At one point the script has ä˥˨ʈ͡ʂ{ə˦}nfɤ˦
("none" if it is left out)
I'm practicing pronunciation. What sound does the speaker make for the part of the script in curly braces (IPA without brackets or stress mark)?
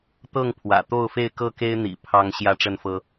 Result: ə˥˨